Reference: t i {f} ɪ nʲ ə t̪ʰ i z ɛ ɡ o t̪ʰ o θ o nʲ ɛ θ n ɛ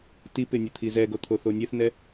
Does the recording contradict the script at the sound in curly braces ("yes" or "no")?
yes